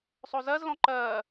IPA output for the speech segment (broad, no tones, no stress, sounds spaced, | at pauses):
sˤ o z ɜ z l ɔ̃ ǃ ɜ